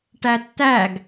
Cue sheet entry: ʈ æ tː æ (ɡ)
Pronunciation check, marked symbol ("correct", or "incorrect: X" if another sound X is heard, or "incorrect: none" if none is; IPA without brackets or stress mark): correct